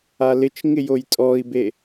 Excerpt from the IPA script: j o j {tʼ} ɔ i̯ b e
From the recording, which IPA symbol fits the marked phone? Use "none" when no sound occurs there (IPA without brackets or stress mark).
tʼ